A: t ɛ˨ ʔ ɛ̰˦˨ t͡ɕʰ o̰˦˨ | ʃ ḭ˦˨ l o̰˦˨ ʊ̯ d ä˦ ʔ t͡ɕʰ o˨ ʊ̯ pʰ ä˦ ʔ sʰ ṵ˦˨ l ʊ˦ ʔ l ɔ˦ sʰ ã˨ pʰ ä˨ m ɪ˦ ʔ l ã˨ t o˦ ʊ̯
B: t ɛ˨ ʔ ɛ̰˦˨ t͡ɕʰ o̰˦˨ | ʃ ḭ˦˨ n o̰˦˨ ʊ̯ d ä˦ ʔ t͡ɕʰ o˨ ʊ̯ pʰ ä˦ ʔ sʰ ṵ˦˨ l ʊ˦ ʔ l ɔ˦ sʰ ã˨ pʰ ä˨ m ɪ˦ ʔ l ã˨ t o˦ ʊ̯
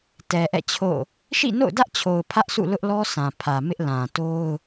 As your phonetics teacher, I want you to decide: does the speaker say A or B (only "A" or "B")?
B